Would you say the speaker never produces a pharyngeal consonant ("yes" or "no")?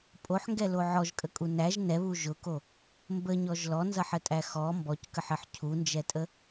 no